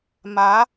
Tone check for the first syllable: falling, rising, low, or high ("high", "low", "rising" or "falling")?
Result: rising